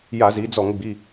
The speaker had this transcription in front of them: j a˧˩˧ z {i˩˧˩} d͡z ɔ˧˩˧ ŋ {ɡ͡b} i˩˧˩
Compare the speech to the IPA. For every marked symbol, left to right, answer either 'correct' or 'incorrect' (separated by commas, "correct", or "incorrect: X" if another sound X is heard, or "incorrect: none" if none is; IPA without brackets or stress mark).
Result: incorrect: i˩˧, correct